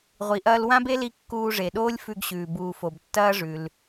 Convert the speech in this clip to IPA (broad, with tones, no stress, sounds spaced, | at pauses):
ʁʷ i˩ ʔ ɐː˧ l w ã˥ b e˥ l i˧ kː uː˧ ʐ e˩ ɗ oː˥ lʲ f ʉ˧ ɡ ɕ ʉː˩ b uː˩ f o˩ b tː ɐː˥ ʐ ʉ˩ l